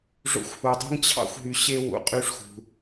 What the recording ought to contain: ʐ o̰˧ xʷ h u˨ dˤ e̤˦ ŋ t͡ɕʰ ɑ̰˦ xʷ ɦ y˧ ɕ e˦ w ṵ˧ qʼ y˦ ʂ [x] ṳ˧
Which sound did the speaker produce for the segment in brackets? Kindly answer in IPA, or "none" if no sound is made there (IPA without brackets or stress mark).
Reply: x